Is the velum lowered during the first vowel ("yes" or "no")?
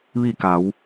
no